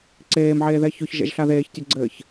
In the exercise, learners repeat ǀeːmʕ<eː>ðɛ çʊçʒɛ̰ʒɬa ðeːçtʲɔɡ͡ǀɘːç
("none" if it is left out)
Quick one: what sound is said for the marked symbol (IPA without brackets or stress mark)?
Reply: eː